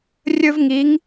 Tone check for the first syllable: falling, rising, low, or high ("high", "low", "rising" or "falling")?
high